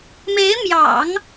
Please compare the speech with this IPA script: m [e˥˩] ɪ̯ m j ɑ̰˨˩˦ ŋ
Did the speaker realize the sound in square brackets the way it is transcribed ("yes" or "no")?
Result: no